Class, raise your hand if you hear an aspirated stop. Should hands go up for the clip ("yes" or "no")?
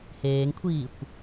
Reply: yes